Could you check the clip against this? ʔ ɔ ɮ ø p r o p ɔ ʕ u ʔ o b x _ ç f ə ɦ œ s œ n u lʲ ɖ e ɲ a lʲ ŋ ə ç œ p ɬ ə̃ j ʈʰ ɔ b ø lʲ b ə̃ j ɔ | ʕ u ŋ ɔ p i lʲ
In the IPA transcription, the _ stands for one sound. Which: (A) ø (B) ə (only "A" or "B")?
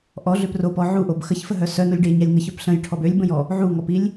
B